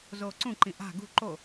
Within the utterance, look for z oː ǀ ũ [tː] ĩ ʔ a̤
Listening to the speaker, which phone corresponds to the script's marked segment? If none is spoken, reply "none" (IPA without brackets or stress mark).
ǃ